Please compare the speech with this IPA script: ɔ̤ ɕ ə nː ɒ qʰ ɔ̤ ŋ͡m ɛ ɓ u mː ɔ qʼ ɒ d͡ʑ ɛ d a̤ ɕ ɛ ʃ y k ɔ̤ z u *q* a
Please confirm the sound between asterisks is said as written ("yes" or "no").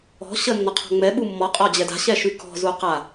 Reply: yes